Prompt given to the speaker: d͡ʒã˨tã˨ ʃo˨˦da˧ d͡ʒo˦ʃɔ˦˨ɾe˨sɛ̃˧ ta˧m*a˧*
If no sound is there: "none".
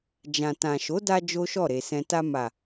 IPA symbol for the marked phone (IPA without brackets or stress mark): a˨